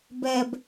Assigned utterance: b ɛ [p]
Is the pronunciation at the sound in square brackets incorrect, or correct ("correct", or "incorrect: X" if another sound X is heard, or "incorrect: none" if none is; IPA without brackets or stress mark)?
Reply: incorrect: b